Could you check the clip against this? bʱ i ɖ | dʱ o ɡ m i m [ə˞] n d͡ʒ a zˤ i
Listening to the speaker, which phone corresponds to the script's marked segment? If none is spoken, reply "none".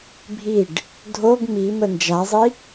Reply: ə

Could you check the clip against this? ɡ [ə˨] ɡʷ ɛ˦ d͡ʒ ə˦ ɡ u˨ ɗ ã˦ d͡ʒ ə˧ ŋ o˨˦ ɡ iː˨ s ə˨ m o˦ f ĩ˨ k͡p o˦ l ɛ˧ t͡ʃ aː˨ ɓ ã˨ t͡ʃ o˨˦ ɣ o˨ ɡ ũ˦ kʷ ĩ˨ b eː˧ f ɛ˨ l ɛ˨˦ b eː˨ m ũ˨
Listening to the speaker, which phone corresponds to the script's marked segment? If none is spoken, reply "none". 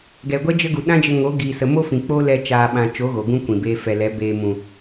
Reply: ɛ˨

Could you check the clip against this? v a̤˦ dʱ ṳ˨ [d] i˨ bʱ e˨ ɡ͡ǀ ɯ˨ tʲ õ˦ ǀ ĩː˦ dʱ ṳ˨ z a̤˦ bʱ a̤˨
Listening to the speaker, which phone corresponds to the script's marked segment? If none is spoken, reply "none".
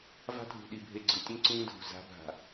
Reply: ɗ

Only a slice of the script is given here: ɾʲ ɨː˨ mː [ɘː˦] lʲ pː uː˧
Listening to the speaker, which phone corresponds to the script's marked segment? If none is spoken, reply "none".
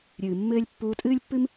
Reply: ɘː˦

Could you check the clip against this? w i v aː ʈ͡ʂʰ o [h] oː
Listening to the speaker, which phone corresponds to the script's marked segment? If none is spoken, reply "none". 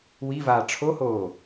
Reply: h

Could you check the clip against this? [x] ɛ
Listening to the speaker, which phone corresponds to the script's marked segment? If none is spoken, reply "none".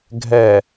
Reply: ɡʱ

